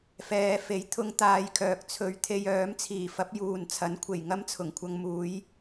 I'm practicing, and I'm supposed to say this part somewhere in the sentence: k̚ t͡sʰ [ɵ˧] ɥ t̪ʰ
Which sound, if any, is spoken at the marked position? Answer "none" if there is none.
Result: ɵ˧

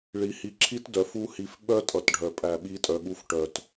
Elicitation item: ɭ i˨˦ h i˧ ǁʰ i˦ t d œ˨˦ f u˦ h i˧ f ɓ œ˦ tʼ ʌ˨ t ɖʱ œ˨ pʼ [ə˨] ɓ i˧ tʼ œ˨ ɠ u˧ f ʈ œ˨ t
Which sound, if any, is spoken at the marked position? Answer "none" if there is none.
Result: æ˨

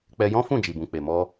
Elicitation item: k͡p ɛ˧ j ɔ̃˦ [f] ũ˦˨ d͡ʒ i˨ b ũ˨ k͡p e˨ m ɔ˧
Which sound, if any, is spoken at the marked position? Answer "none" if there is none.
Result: f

